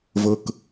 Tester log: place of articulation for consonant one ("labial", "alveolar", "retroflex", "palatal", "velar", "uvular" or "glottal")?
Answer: labial